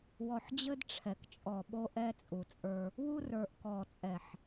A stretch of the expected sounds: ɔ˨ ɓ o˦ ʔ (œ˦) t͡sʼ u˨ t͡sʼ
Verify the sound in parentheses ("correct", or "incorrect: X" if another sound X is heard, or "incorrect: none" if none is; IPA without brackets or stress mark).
incorrect: ɛ˦